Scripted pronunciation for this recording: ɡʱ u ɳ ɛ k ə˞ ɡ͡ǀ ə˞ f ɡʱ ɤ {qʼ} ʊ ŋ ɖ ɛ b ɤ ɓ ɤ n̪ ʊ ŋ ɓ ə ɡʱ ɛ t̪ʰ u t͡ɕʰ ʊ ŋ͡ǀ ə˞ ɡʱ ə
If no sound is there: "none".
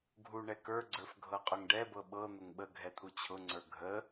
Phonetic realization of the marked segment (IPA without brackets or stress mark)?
qʼ